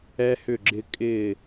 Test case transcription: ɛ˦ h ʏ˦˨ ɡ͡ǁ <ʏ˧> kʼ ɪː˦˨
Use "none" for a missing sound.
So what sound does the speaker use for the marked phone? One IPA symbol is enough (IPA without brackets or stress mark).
ɪ˧